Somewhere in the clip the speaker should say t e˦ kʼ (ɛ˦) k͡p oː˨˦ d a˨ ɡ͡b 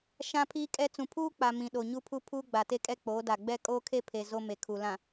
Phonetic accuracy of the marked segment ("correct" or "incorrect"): correct